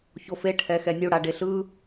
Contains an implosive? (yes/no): no